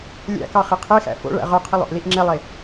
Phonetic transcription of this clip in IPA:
lʲ æ̰ k ɑ χ i qʰ e x æ̰ f o̰ ɭ æ̰ ʁ œ qʰ i lˠ o̰ ʔ l i ʔ ŋ͡ǁ e lˠ e

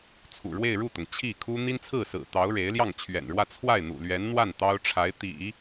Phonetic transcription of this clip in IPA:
t͡sʰ ṵ˨˩ ɻ w e˥˧ ɪ̯ ɻ u˥˩ t̪ ʊ˩ ŋ t͡ɕʰ i˥˩ kʰ u˥ n̪ i˥ n t͡sʰ ɹ̩˥˩ s ɹ̩˨˩ t̪ ɑ˧˥ ʊ̯ ɻ e˧˥ ɪ̯ l j ɑ˥˩ ŋ t͡ɕʰ ɥ ɛ̰˨˩ n ɻ w ä˥˧ t͡sʰ w a˥˩ ɪ̯ n̪ ṵ˨˩ l ɥ ɛ˧˥ n n̪ w a˥˩ n t̪ ɑ˥ ʊ̯ ʈ͡ʂʰ a˧˥ ɪ̯ t̪ ḭ˨˩˦

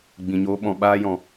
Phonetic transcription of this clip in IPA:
ɡ͡b ĩ˨ ɲ oː˧ ɓ ɔ̃˨ ɓ aː˧ j ɔ̃˨

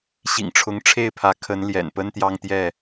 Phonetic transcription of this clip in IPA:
ɕ ḭ˨˩ ŋ ʈ͡ʂʰ ʊ˨˦ ŋ ʈ͡ʂʰ e˥˨ ɪ̯ pʰ ä˨˦ kʰ ə˨˦ n l j ɛ̰˨˩ n p ə˦ n t̪ j ɑ˦ ŋ t̪ j ɛ˥˨

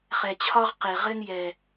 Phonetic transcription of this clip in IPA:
χ ɛ˨ t͡ɕʰ ɒ˦ ʁ q e˨ ʁ ɘ˦ n j ɛ˦

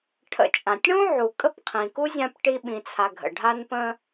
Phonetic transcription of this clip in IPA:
ʈʰ ə̰˨ t͡ʃʼ ã˩ tʲ ɽ ũ˥ ʕ u˩ kʼ ə˦ p qʰ ĩ˩ k u˥ zʲ ã˦ p ʈ i˦ ɓ ĩ˨ t͡sʰ a˨ ɡʱ ə̰˩ ɖʱ a˦ n p ə̃˦

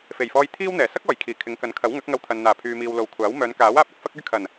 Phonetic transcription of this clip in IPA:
f e˨˩ j f ɔː˧ j t̪ʰ iː˥ w n̪ ɛː˨˩ s ɐ˥ k̚ ɔː˨˩ j kʰ iː˨˩ kʰ ɪ˨˧ ŋ k ɐ˨˥ n kʰ ɐ˨˥ w ŋ ɐ˨˥ k̚ ŋ ɐ˧ w t̪ʰ ɐ˨ n n̪ aː˨˩ pʰ yː˨ m iː˨ w l o˨˧ w kʷʰ aː˨˥ w m œː˨˧ n k aː˨˥ w aː˧ p̚ ɐ˧ k̚ f ɐ˥ k̚ ɵ˥ ɥ kʰ ɐ˨˩ n

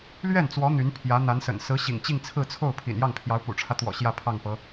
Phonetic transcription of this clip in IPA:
l ɥ ɛ˥˩ n t͡s w ɔ˧˥ n̪ y˧˥ n pʰ j ä˧˥ n̪ a˧˥ n s ə̰˨˩ n s ɹ̩˧˥ ɕ ḭ˨˩ ŋ t͡ɕ i˥˧ ŋ t͡sʰ ɹ̩˥˧ t͡sʰ o˥˩ ʊ̯ pʰ ḭ˨˩ n j ɑ˥˩ ŋ pʰ j ɑ˧˥ ʊ̯ p ṵ˨˩ ʈ͡ʂʰ ä˦ t̪ w ɔ̰˨˩ ɕ j ä˥˧ pʰ ɑ˥˩ ŋ p ɤ˧˥

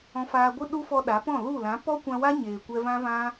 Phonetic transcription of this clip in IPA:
ɔ̃˧ f aː˧ ɡʷ ɨ˦ ɗ u˦ f ɔ˧ ɗ a˨˦ p ɔ̃˦˨ l u˦˨ l ã˨˦ p ɔ˦ kʷ ã˧ w a˦ ɲ eː˨ kʷ ɛ˧ v ã˦ v ã˦

